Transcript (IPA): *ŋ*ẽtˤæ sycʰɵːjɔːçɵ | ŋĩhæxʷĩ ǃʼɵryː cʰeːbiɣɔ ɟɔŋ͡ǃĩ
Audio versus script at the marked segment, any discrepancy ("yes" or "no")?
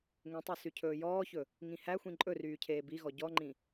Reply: no